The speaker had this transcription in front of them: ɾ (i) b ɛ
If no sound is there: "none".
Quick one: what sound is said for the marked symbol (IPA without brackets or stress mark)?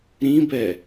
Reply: ĩ